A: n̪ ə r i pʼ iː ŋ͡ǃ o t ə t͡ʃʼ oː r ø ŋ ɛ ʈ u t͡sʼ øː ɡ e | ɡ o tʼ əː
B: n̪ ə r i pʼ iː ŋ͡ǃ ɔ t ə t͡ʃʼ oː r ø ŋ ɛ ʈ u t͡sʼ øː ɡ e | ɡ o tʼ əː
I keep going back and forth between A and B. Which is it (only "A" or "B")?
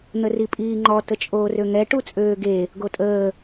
B